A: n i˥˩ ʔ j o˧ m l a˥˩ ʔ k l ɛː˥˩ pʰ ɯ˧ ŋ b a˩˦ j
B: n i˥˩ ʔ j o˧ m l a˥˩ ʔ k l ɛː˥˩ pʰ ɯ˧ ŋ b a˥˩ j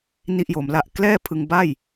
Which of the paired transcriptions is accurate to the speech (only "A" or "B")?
B